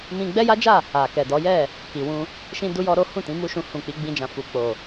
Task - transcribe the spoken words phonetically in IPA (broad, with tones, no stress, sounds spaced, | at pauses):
m ĩ˧ ɡ͡b ɛ˦ j a˦ d͡ʒ a˦˨ | a˨ k ɛ˨ d ɔ˨˦ j ɛ˦˨ | k i˨ w ũ˧ | ʃ ĩ˦ d u˦ j ɔ˦ ɾ o˦ h ũ˦˨ t ĩ˨˦ m u˦ ʃ ũ˧ h ũ˨ k͡p i˨˦ ɡ͡b ĩ˧ d͡ʒ ã˨ f u˧ k͡p o˨